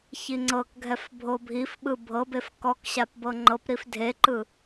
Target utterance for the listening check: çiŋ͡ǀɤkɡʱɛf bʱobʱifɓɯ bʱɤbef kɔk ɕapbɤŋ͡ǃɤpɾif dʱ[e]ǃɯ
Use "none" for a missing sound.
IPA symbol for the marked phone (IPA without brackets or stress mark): e